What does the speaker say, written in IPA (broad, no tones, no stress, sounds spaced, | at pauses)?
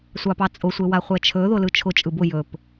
sʷ ɑ p ɑ t͡sʼ ʊ sʷ e w a χʷ ɛ t͡ʃʰ ɵ ð ʊ l ɯ t͡ʃʰ ʊ t͡ʃʼ ɯ b ʊ j ɵ p